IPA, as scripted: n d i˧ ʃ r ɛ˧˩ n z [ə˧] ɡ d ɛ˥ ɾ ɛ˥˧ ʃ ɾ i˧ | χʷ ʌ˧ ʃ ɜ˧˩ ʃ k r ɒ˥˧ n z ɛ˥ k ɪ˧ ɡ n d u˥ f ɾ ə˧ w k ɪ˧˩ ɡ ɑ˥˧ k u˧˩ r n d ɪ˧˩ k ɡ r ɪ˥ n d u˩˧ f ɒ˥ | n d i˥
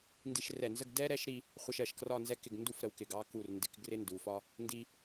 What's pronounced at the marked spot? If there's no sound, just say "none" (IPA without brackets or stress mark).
ə˥˧